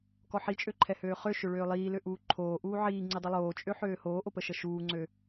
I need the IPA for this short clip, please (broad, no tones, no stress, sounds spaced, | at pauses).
k ɔ ħ i t͡ʃʼ ø ǃʰ ɛ h øː χ ø ʃ ø ɭ øː lˠ iː l ø ʔ uː ǃʰ oː ʔ uː ʕ iː ŋ͡ǀ i dˤ i lˠ oː t͡ʃʼ ø ħ øː h oː ʔ o p ə ʃ ə ʃ uː ŋ͡ǀ ø